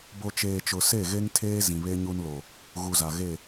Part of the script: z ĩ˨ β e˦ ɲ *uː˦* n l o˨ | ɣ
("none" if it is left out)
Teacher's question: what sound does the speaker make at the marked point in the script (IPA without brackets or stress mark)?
u˦